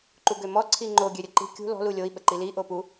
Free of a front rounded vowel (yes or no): no